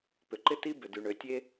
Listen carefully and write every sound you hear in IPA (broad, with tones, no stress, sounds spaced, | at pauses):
p ʏ˨ ǃ ɪ˦ t i˦ b ʏ˨ d y˨ ɳ ø˨ tʲ e˦